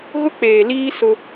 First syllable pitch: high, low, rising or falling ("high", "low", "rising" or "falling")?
high